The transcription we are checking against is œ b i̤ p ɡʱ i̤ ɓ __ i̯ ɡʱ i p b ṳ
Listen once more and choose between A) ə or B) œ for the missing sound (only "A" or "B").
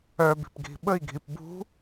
A